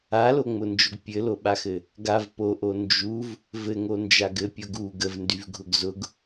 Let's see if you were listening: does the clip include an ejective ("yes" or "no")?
no